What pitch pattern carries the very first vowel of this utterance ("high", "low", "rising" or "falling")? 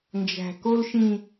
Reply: low